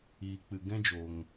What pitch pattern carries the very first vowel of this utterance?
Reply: low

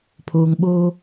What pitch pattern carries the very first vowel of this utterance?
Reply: low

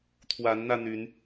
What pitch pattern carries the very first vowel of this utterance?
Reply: rising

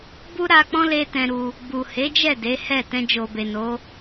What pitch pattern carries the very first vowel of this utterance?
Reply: high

